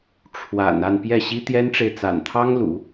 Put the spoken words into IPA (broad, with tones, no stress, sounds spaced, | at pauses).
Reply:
ʈ͡ʂʰ w a̰˨˩ n a˥˧ n p j ɛ˥˩ ɕ i˥ t̪ j ɛ˥ n ʈ͡ʂ e˨ ɪ̯ t͡s a̰˨˩ n t̪ʰ ɑ˥ ŋ l ṵ˨˩˦